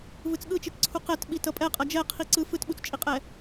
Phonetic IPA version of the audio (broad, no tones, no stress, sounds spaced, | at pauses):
v ɯ t͡s ɠ ɯ t͡ʃ i t ǀʰ u q ɛ t ɓ i t ʌ pʼ ɛ qʼ ʌ d͡ʒ ɛ qʰ i ǀ ɯ f ɯ t ɓ u t͡s t͡ʃʼ i qʼ ɛ